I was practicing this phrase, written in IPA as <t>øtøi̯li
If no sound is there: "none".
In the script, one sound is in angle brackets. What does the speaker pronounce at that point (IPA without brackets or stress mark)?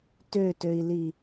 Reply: t